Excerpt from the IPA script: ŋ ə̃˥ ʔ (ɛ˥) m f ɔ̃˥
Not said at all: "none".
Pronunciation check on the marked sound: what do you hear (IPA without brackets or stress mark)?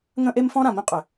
e˥